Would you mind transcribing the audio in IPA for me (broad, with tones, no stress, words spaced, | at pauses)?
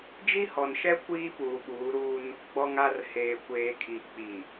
d͡ʒi˦hɔ˨nʃɛ˦ kʷiː˦puː˨ɓuː˨˦ɾuː˦n | ɡ͡bɔ˨ŋa˨r heː˨kʷeː˨kʰi˨ k͡pi˨